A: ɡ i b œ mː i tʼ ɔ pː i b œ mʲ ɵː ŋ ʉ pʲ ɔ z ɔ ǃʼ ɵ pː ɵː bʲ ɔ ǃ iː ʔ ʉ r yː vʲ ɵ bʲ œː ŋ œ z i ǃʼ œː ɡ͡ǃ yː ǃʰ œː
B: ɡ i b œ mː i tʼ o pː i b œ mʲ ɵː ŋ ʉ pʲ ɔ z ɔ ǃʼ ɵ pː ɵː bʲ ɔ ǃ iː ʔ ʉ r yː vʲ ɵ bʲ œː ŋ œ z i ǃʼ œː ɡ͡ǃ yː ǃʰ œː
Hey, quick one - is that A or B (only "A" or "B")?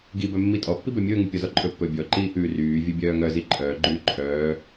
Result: A